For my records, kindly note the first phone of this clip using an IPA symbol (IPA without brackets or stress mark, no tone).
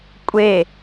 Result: kʷʼ